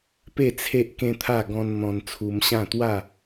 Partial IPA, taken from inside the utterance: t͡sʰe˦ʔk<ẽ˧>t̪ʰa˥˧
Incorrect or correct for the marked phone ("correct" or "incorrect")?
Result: incorrect